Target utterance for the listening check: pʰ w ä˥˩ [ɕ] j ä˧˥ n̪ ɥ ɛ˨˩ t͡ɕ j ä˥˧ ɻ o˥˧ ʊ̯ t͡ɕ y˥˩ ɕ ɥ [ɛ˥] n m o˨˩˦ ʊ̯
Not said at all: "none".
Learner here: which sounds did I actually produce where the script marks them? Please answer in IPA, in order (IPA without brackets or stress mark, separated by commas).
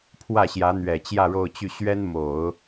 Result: ɕ, ɛ˥